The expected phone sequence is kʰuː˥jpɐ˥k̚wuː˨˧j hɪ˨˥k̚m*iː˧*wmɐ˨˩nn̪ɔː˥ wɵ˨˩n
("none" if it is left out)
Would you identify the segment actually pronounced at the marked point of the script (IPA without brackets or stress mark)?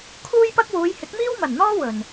iː˥